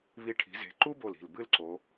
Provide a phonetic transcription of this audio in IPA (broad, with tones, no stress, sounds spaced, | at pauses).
β i˧˩ ʈʰ i̤˩˧ z e̤˩˧ ǃ u˥ b o˧˩ l i̤˧˩ l b ɨ˥˧ l ǀ o˩˧